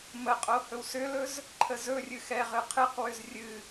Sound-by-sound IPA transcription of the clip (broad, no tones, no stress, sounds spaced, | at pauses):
m ə qʼ o h ɵ w s ʏ l ɵ z | ǃʰ ə z ɵ rʲ ɨ x ɛ ʁ ɨ qʰ ɨ q w ʏ z rʲ ɨ